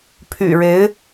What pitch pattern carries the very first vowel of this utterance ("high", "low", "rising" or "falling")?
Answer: low